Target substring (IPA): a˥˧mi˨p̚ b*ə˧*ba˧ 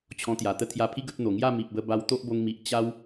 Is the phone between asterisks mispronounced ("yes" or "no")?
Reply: no